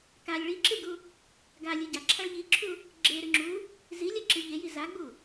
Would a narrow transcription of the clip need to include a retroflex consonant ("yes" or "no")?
yes